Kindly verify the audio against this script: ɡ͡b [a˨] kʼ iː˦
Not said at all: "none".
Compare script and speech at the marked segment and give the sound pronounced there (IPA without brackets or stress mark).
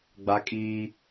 a˦